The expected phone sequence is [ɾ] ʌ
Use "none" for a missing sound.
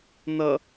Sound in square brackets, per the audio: n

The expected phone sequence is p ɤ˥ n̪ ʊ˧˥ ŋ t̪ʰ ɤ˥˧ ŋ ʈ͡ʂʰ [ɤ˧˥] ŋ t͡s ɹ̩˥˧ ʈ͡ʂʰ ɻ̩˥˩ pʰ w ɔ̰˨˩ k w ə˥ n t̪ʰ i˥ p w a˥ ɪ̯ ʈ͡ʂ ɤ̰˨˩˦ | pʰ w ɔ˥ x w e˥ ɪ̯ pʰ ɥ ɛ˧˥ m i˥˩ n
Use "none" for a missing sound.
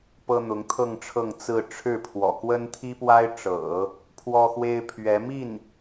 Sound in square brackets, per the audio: ɤ˥˧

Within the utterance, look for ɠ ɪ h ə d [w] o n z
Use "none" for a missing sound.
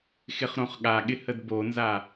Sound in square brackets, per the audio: b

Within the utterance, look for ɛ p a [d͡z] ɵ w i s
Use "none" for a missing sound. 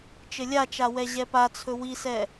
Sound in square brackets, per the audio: t͡sʰ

